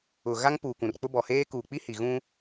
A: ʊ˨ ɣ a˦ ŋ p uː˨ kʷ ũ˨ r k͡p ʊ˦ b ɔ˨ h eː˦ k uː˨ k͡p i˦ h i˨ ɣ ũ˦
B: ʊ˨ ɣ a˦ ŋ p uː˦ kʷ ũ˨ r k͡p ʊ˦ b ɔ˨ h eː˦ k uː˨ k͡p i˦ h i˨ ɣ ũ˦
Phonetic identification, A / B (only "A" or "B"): A